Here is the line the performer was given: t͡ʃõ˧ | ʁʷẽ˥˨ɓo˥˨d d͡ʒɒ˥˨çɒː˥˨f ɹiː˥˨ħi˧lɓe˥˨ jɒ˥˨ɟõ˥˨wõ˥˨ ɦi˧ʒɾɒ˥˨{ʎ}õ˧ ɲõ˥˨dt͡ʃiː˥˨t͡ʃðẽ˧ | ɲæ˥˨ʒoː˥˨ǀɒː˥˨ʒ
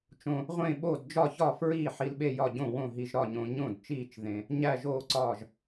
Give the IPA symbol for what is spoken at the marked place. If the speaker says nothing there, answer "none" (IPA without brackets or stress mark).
ɲ